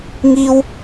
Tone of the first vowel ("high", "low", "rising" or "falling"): high